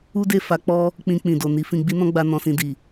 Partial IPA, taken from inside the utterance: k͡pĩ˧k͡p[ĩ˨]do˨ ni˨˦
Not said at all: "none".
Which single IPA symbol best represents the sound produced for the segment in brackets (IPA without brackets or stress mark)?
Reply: ĩ˨